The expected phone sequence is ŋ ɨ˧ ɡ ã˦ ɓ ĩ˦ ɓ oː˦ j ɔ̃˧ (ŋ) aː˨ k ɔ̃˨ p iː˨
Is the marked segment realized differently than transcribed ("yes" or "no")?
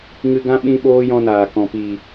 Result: yes